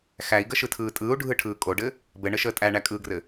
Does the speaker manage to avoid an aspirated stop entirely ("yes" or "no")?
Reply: no